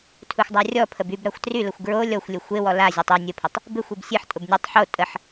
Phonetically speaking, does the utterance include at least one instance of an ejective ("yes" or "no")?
yes